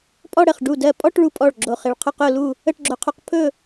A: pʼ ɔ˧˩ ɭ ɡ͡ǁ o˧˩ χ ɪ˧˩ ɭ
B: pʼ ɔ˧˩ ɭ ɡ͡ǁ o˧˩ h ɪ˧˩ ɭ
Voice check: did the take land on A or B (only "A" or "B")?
A